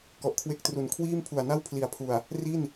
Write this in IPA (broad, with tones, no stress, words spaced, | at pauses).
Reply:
kɔ˨˩ʔkʰwe˦˥k̚tru˨˩n kʰwiː˥˩mpʰu˨˩a̯na˥˩w pʰli˨˩a̯pʰu˨˩a̯ | ri˥˩n